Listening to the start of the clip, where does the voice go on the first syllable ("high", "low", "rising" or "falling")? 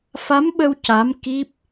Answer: rising